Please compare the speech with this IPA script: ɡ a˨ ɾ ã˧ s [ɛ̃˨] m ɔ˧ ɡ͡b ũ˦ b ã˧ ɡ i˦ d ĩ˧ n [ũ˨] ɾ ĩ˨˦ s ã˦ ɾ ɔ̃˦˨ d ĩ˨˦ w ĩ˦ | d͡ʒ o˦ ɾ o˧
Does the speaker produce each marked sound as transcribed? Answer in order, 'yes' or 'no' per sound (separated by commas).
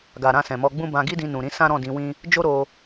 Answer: yes, yes